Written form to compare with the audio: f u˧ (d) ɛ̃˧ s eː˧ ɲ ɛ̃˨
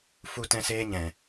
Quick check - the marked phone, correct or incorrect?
incorrect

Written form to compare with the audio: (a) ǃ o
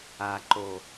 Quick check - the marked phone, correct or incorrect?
correct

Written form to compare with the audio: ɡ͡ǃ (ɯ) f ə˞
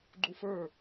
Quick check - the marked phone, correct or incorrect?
incorrect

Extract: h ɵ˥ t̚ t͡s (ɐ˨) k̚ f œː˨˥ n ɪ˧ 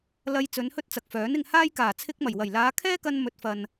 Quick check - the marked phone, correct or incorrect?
correct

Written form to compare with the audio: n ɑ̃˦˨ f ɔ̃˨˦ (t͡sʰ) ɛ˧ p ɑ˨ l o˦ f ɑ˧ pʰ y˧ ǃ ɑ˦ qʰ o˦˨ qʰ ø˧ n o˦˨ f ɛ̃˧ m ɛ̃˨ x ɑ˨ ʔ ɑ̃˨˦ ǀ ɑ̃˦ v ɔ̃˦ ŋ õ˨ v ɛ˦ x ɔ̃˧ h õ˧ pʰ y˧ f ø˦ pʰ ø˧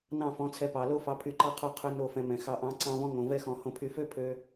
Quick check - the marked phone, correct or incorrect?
correct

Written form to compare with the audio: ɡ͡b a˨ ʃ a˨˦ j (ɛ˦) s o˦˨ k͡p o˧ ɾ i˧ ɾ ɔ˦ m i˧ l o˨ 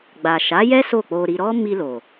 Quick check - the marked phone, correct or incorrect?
correct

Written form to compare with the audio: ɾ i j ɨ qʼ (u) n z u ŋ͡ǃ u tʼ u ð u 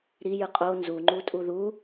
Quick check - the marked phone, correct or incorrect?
incorrect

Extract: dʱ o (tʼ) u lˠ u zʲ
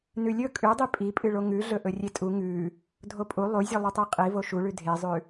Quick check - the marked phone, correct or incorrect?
incorrect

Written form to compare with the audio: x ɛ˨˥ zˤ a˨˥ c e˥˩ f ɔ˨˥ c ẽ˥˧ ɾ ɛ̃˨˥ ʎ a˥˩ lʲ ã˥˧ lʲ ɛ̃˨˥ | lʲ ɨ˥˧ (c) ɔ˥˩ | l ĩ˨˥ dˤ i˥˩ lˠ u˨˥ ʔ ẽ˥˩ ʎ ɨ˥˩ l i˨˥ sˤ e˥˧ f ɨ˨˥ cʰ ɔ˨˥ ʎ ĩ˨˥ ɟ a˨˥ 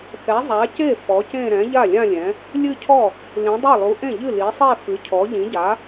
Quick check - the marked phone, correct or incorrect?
incorrect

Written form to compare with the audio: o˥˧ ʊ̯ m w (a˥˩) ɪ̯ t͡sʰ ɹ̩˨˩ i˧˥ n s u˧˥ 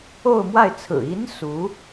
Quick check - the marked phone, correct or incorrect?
correct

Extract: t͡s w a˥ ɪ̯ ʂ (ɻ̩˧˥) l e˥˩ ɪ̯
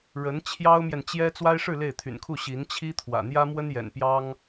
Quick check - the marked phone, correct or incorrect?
incorrect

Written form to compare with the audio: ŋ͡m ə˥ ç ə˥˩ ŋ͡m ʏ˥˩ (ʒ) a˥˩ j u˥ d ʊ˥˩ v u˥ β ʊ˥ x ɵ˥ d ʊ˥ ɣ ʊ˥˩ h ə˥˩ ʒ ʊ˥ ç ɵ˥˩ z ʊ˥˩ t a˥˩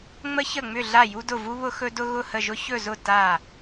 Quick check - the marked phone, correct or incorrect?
incorrect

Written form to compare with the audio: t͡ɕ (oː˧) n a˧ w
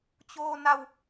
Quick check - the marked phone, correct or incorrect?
correct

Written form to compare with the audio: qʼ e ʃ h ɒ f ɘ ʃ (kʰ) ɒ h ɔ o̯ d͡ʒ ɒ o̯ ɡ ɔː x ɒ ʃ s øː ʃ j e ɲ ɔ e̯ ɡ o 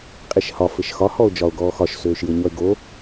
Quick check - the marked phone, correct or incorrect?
incorrect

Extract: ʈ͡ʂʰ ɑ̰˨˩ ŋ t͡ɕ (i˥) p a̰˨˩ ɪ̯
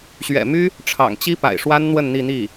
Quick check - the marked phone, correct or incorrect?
correct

